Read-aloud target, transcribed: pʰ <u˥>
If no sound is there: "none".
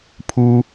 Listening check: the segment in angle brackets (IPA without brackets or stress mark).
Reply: u˥